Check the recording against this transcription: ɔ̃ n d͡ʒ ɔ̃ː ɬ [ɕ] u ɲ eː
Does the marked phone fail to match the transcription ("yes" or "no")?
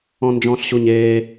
no